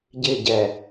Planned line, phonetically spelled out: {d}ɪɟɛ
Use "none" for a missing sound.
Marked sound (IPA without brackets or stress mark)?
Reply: ɟ